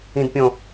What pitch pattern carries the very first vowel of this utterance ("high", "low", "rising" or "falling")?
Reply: low